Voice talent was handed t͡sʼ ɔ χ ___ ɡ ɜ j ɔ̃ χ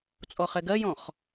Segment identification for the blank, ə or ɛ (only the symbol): ɛ